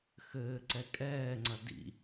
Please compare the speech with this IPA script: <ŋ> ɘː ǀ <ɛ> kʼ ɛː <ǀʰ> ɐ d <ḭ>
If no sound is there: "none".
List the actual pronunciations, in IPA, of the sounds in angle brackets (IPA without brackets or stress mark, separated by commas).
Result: x, ɛ, ŋ͡ǀ, ḭ